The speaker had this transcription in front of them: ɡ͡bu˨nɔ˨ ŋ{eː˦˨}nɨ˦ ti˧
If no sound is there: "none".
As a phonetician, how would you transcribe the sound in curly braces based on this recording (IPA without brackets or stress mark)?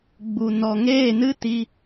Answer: eː˦˨